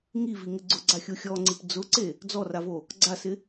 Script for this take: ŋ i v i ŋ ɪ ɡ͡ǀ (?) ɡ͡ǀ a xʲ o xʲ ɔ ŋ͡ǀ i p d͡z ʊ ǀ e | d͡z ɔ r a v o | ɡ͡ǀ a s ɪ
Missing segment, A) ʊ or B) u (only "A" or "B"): A